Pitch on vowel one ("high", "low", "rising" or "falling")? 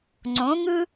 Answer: rising